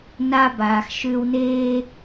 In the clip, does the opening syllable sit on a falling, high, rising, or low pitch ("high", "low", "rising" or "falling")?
high